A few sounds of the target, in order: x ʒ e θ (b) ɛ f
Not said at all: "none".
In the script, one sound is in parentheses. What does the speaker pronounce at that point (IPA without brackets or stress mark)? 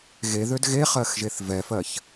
v